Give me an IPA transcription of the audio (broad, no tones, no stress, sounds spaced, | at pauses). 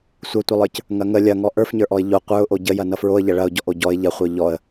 sʷ ʌ tʷ ʌ lˠ ə˞ c | ŋ ɐ ŋ ə lʲ ɐ ŋ ɔ ʔ ə˞ f ɲ ə˞ ʔ ɔ ɪ̯ ʎ o qʷ ə˞ ʊ̯ ʔ o ɟ ə j ɐ n ʌ f ɹ o ə̯ ʎ ɐ ɭ ɐ ʊ̯ ɟ ɔ ʔ o ɟ ɔ ɪ̯ ʎ ɐ χʷ ə˞ ʎ ɔ ə̯